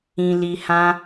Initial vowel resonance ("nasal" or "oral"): nasal